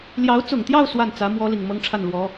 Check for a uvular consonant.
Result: absent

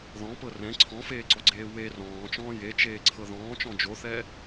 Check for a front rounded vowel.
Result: absent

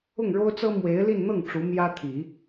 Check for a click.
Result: absent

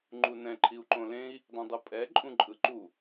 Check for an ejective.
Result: present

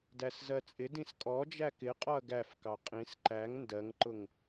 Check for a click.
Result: present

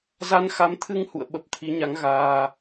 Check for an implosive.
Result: present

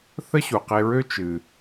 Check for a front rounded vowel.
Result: present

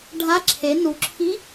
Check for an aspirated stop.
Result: present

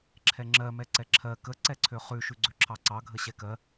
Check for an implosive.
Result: absent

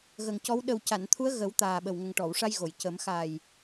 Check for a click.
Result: absent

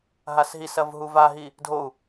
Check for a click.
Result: absent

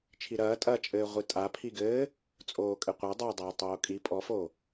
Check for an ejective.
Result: present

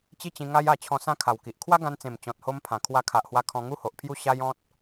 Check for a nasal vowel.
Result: present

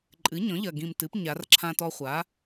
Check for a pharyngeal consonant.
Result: absent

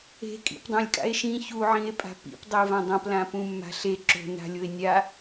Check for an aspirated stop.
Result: absent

